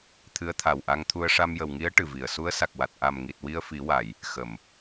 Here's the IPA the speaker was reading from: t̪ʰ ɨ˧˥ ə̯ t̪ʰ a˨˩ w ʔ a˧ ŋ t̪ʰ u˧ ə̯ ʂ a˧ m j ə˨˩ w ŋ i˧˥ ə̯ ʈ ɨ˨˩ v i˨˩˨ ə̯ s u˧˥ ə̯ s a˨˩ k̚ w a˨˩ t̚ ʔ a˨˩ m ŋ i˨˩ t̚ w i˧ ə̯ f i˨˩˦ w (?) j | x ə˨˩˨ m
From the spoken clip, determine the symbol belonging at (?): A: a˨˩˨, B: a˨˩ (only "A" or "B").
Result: A